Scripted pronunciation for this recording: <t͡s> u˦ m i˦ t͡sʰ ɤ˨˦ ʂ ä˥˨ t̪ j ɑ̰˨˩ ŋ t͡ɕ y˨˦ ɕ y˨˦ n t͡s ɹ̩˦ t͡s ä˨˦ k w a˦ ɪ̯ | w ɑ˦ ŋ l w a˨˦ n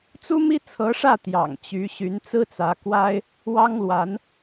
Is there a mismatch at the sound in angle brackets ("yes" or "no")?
no